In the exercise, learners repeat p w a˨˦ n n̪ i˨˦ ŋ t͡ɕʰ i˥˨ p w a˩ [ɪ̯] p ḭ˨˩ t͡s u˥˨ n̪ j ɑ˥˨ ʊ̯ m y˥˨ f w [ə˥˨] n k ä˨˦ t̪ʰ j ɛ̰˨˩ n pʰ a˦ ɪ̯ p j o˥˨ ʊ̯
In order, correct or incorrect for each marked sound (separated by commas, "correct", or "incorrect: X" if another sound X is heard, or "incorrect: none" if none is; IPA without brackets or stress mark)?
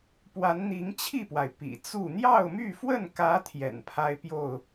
correct, correct